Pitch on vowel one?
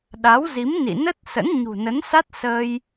rising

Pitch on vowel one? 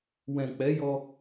low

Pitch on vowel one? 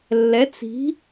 rising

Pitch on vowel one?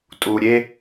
low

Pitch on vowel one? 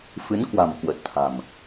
rising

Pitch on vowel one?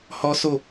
high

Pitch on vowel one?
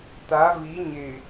rising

